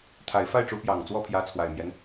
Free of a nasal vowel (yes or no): yes